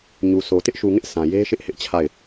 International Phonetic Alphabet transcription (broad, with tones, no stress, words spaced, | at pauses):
ɲu˨so˨ tɪ˦ʔʃu˨ŋɪ˦ʔ sã˨je˦ʃɪ˦ʔ hɪ˦ʔt͡ɕʰa˦˨ɪ̯